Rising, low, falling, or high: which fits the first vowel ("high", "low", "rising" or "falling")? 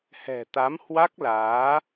low